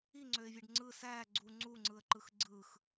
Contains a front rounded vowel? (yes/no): yes